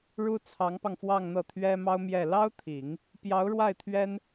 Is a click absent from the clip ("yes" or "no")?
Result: yes